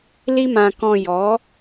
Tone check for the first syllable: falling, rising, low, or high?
high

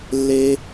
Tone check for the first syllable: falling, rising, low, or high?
high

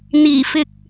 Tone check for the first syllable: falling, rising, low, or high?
low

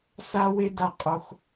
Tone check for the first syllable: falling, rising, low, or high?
high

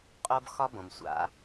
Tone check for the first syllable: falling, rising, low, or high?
high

